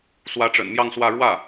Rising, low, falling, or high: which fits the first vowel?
rising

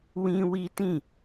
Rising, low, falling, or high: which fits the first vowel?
high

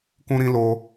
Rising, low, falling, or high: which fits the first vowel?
high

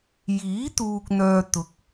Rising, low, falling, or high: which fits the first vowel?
rising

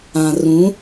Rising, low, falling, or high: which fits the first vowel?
low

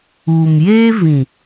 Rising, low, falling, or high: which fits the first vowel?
low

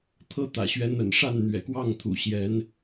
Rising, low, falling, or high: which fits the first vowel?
high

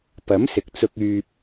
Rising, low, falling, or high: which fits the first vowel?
rising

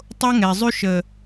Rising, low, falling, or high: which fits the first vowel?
high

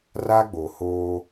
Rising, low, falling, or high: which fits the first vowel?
high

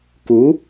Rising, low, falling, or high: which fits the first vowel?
rising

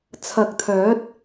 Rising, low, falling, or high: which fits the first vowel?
low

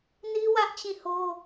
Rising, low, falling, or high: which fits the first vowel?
high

